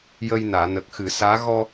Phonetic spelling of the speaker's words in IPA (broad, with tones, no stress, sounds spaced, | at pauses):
j ə˧ j n aː˨˩˨ n ə˨˩ k̚ x ɨ˨˩˦ s aː˧˥ ɣ ɔ˧